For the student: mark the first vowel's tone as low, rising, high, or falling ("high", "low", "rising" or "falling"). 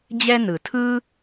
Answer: high